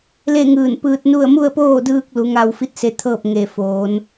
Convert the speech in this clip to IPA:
le˥˨ŋɯː˧˩npɯː˧t̚nu˥˨ə̯ mu˥˨ə̯poː˥˨dɯː˧k̚ lu˩˧ŋa˧wfi˧˥t̚se˧ t̪ʰɤː˥˨p̚ŋe˧˩foː˩˧n

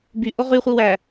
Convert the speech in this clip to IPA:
by ʔoʁy χʷiwæ

